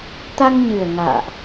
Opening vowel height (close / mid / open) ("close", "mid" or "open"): open